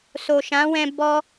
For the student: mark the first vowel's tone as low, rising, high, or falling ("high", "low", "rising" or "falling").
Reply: low